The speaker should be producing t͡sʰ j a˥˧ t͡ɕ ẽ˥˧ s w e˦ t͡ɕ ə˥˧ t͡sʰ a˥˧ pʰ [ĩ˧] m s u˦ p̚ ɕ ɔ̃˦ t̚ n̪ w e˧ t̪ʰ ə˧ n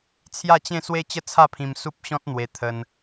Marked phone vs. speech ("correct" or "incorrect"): correct